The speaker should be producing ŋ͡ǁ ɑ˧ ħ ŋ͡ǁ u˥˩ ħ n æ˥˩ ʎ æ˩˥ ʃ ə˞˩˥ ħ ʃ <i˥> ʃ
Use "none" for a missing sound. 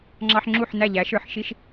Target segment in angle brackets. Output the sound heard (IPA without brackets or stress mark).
i˥